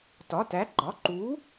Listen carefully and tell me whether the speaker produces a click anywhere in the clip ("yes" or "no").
yes